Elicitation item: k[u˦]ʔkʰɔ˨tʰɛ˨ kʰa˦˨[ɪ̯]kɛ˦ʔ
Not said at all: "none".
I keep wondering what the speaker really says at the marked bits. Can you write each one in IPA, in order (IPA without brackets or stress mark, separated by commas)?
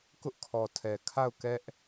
ʊ˦, ʊ̯